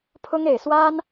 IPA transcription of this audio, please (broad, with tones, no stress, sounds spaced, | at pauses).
pʰ ʊ˥ ŋ e˨˩ ɪ̯ s w a˥ n